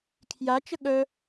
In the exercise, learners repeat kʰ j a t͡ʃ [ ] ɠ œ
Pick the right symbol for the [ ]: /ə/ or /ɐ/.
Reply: ə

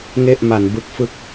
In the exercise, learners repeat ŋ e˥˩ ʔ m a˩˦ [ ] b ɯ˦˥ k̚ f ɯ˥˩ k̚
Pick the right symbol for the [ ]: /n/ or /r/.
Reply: n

